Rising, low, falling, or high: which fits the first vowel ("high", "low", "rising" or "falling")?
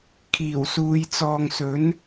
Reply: low